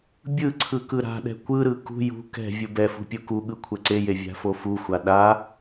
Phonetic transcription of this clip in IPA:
bʲ ɯ ǀʰ ɯ k ɯ ɾ a̤ ɗ ɛ̤ kʷ ɯ ɾ ɯ k ṳ j ṳ k ɛ̤ vʲ u b ɛ f ṳ pʲ u k u ɠ ɯ kʷʰ ɛ ǀ e j e vʲ a̤ f o f u xʷ a ɗ a

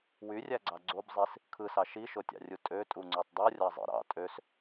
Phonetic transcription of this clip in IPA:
w y rʲ æ ɡ͡ǀ ɑ ɡ͡ǀ o b zˤ i s | kʰ ɯ s ɑ ʃ i ʃ o tʲ ɑ̰ rʲ u tʼ ø tʼ u ŋ͡ǀ ø tˤ dˤ u rʲ ɑ zˤ ḭ ɾ ɑ̰ tʼ ø s

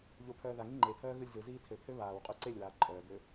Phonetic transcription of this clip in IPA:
ʎ o pʰ œː ð a ŋ i ŋ͡ǃ e pʰ œː ɣ ɯ lʲ z ɯ z iː tʰ ø pʰ ø β aː w qʼ u ǀ e lʲ w aː ǃʼ œː b ø

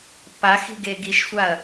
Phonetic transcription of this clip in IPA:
p a x i̤ ɡ e ɡ i ʃ sʷ a ɐ̯

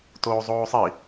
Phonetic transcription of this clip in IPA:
t oː zˤ oː sˤ i

